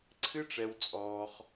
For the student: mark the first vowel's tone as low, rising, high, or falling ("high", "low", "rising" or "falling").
high